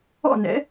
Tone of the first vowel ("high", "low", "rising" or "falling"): falling